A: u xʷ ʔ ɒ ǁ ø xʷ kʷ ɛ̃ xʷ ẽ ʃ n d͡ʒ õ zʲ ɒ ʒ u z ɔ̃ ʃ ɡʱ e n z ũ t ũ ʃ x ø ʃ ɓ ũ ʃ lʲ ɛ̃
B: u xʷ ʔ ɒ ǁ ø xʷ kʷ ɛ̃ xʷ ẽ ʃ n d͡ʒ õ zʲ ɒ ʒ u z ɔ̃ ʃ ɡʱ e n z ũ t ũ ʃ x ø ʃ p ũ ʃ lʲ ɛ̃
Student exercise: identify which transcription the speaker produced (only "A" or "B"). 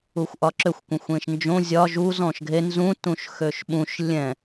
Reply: A